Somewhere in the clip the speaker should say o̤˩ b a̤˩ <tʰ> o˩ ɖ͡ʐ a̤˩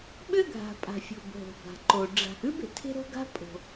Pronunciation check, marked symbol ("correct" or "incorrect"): incorrect